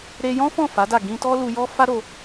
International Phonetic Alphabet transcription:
ɾe˧jɔ̃˦fɔ̃˦˨ fa˨˦da˦˨ ɡĩ˧tɔ˦lu˧jɔ˦ fa˦ɾo˧

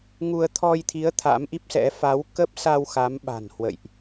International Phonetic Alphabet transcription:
ŋu˧ə̯ t̪ʰɔ˧jt̪ʰi˨˦ə̯ t̪ʰa̰˧˥mʔi˦˥p̚sɛ̰˧˥ fa˨˦wkə˦˥p̚sa˧w xa˨˦mɓa̤˨˩n hwə̰˧˨jʔ

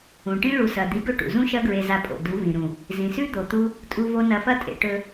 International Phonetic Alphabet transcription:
ũ˨ʈĩ˦ ɭu˧sɐ˧ d̪i˨˦ɡɵ˦˨ʈṵ˨ zũ˦ʃɐ˦ ɡɹe˧za˧pʼo̰˨ du˨˦vĩ˨ɾũ˨ | zĩ˨sʉ˦ d̪o˨t̪u˧ | tʼu˧vo˧ nɐ˧fɐ˦tʼḛ˧ ʈɵ˧

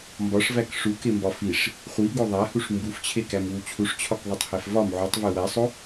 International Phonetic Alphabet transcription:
mbɒʂvæk ʂukembɒ fiʂ | χʷiɡo ðˤæhuʂ mbuft͡ɕʰekæmwu t͡ɕʰuʂt͡ɕʰɒkðˤitˤhæf vɒm ʕutˤve wæsˤo

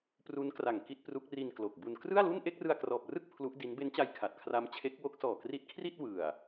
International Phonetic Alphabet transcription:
pru˦˥nkra˨˩ŋ ki˥˩t̚pru˦˥k̚ ri˧nklo˨˩k̚bu˧n krɯ˥˩a̯lu˥˩n ʔe˥˩k̚rɯ˧a̯krɔː˨˩p̚rɯ˥˩k̚ pʰlu˦˥ʔdi˦˥n be˦˥nt͡ɕa˧j kʰa˨˩t̚kʰra˦˥mt͡ɕʰe˦˥k̚ wo˦˥k̚ sɔː˨˩kri˦˥t̚kʰri˥˩t̚ wɯ˨˩a̯

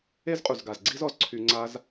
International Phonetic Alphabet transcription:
e˦zqʼu˨zɡa˨z ɡ͡ǀi˦zɔ˨zǀʰy˧ŋ͡ǀa˦z

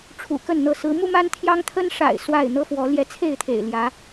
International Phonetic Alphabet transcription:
ʈ͡ʂʰṵ˨˩kə˥˨nn̪ɤ˥˨ sɹ̩˨˦mu˦ma˦n t̪ʰjɑ˦ŋt̪ʰə˦nʂa̰˨˩ɪ̯ swa˥˨ɪ̯ n̪ɤ˦fwɔ˨˦ ljɛ˨˦t͡sʰe˥˨ɪ̯t̪ʰḛ˨˩ɪ̯ ljä˨˦

